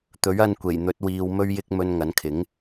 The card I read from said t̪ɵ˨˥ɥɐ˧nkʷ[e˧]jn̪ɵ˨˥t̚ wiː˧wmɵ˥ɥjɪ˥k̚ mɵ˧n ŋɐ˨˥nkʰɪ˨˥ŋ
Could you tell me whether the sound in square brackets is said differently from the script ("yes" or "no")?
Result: yes